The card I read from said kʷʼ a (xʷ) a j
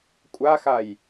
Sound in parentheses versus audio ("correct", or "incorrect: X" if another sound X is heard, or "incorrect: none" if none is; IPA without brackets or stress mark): incorrect: x